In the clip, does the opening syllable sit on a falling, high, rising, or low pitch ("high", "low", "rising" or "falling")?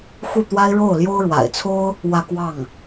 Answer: falling